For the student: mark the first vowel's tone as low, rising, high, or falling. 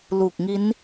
low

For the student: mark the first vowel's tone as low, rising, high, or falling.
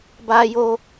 high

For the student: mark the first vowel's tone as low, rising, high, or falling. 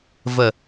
falling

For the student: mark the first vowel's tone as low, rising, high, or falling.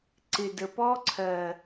low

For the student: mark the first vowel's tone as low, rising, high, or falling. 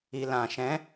low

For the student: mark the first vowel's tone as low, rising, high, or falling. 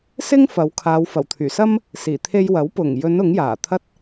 high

